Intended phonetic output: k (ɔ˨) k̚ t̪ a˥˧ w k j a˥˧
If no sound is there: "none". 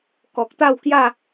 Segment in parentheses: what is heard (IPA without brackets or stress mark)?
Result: ɔ˨